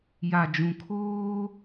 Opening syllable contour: low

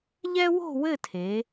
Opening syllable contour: high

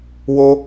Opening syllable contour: high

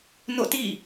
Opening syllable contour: falling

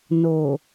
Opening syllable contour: low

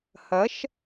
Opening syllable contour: rising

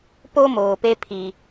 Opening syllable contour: high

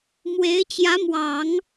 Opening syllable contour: rising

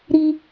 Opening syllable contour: high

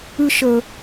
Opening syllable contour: high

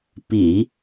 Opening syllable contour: low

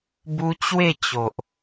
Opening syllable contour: high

